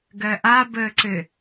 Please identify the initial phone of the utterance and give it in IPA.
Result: ɡ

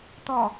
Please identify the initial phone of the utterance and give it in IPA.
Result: t̪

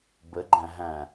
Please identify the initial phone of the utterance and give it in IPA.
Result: b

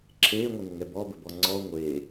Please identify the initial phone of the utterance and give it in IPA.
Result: ǁʰ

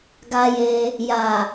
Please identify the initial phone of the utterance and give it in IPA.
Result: ɡ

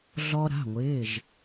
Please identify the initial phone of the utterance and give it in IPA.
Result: ɮ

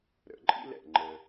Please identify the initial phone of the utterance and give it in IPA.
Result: ɾ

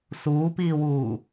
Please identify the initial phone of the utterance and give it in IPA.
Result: s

